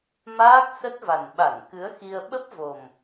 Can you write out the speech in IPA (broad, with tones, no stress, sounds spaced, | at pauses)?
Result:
m aː˦˥ k̚ s ə˦˥ t̚ v a˨˩ n ɓ a˧˩ n k ɨ˨˦ ə̯ x i˧ ə̯ ɓ ə˦˥ p̚ v o˨˩ m